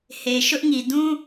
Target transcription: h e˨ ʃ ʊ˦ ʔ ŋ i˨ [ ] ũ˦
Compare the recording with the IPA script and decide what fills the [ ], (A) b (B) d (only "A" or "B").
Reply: B